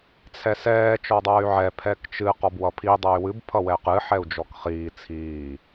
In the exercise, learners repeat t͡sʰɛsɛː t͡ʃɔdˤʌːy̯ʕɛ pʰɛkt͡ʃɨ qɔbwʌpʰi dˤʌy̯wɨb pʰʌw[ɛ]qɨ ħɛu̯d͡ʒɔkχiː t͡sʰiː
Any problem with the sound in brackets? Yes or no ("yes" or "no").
no